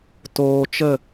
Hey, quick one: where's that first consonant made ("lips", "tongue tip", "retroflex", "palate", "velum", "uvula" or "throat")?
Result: tongue tip